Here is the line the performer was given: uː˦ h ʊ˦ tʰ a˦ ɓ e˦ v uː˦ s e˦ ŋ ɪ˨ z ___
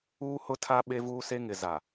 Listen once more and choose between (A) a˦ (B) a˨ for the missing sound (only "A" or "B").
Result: B